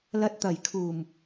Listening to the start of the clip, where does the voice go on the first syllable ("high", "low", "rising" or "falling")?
rising